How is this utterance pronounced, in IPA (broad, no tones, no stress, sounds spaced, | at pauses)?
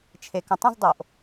t͡ʃʰ e k ə̃ tˤ ə̃ z dˤ o ʔ